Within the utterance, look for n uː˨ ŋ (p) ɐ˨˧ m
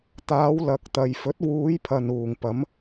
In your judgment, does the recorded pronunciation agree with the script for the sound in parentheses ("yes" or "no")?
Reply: yes